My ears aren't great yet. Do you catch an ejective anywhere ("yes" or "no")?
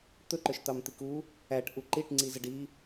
no